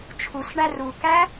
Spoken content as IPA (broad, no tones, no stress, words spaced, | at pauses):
t͡ʃʰusɳæ rukæ